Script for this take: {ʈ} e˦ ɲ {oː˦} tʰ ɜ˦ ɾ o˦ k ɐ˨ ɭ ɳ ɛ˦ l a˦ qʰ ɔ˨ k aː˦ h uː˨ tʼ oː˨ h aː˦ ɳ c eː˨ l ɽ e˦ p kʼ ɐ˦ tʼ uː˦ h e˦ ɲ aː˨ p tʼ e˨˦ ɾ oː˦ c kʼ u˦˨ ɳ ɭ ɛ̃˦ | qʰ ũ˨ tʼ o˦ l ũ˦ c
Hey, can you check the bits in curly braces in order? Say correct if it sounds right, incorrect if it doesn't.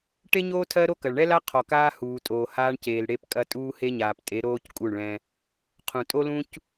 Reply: correct, correct

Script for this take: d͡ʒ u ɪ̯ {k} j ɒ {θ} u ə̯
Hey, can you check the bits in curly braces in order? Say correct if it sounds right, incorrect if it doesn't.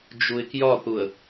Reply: correct, correct

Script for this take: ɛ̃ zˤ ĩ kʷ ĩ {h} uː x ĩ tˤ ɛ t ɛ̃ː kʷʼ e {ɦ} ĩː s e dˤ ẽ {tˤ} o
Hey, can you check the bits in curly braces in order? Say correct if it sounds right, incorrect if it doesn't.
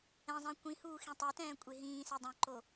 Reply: correct, correct, incorrect: ǃ

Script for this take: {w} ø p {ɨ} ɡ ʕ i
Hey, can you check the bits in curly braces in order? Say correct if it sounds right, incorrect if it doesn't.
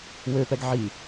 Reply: correct, incorrect: ɛ

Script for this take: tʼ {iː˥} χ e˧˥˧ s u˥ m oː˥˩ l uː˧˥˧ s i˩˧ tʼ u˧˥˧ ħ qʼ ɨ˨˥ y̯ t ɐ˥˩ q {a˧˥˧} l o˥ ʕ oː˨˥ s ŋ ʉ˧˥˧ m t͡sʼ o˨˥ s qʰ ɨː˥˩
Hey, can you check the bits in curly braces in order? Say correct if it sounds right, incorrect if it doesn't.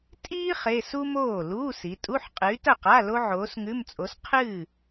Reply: correct, correct

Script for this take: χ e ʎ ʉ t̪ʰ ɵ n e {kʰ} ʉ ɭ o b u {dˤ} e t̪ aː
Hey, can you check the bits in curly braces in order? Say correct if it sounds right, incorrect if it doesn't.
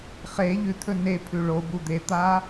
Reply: incorrect: pʰ, incorrect: d̪

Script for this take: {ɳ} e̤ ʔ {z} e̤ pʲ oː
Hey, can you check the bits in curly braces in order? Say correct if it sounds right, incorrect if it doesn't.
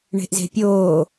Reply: correct, correct

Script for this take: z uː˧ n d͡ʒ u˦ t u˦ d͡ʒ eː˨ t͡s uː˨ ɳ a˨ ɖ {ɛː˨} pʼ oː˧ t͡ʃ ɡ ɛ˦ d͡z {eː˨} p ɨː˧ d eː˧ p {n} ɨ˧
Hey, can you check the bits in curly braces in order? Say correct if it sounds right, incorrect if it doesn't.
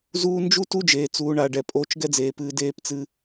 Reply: incorrect: ɛ˨, correct, incorrect: t͡s

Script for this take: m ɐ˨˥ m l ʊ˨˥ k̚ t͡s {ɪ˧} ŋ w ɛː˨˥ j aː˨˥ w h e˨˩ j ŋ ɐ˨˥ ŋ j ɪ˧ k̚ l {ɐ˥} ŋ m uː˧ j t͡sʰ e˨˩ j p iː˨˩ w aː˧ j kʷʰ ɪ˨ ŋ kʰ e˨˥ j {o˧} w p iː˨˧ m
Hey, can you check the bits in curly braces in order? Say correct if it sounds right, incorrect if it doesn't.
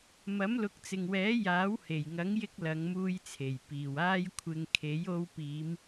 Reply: incorrect: ɪ˨, incorrect: ɐ˨˧, correct

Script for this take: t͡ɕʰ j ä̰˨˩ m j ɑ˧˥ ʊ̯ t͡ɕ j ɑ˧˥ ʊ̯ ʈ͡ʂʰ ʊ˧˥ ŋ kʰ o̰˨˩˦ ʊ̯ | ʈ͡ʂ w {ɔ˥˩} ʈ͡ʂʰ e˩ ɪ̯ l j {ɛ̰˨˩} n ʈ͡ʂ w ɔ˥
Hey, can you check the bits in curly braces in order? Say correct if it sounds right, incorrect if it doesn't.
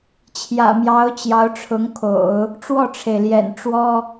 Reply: correct, correct

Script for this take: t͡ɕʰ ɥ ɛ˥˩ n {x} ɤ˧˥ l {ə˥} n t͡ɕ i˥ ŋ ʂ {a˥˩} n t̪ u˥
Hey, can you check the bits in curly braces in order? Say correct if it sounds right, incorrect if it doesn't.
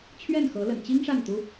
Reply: correct, incorrect: ə̰˨˩, correct

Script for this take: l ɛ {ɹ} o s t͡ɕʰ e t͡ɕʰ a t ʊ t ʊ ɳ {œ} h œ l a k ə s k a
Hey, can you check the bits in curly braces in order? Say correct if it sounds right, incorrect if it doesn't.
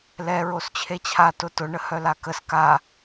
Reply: correct, incorrect: ə

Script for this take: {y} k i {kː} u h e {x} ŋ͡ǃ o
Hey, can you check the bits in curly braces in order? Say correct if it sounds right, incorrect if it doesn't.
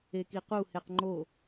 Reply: incorrect: e, incorrect: q, incorrect: q

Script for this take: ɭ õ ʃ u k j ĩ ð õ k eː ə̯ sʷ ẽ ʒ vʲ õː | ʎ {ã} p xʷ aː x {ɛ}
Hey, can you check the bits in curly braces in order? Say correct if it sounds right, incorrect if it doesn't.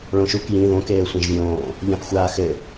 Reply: correct, incorrect: ɘ

